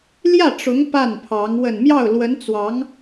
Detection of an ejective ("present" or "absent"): absent